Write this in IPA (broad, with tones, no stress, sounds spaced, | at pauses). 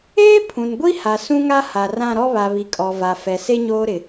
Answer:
eː˦ pʰ ũ˨ n ɡʷ i˦ h a˨ s ũ˦ ŋ a˦ h a˨ r ã˦˨ ɾ ɔ˦ β a˨ β i˨ kʼ ɔ˨ v a˨ f ɛ˨ s e˦ ɲ oː˦ ɾ ɪ˨